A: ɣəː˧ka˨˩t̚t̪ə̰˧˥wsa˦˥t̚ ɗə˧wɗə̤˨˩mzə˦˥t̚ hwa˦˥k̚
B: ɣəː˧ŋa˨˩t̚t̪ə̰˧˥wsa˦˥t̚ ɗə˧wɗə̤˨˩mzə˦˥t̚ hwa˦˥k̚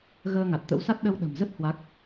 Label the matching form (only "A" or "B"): B